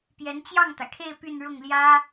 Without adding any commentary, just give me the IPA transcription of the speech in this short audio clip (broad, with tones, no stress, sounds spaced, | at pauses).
p j ɛ˧˥ n t͡ɕ j ɑ˥˩ ŋ t̪ ä˩ kʰ e˥˧ ɪ̯ p y˥˧ n ɻ ʊ˥˩ ŋ l j ä˥